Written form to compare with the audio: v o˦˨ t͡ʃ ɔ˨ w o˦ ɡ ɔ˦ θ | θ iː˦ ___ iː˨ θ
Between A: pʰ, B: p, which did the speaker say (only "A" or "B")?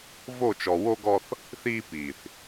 B